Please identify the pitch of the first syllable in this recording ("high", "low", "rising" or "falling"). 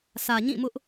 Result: low